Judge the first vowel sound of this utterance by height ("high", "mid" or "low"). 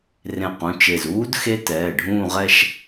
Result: mid